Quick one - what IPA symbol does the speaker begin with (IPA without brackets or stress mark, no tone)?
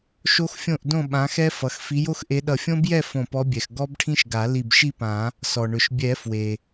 ʃ